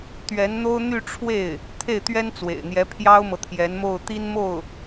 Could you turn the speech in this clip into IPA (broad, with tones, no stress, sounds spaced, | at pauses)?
t̪ ɥ ɛ˧˥ n n̪ o˥ ʊ̯ n̪ y˥˧ ʈ͡ʂʰ w e˥˩ ɪ̯ | t̪ʰ e˥˩ ɪ̯ t̪ ɥ ɛ˥ n t͡s w ḛ˨˩ ɪ̯ n̪ j ɛ˧˥ pʰ j ɑ˥ ʊ̯ m ɤ˨ t̪ʰ j ɛ˧˥ n m o˥˩ ʊ̯ t̪ i˥ n m o˥˩ ʊ̯